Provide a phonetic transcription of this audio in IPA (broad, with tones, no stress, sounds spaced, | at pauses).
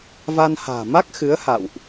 v a˧ n h a̤ː˨˩ m a˦˥ k̚ x ɨ˨˦ ə̯ h a̰˧˨ w ʔ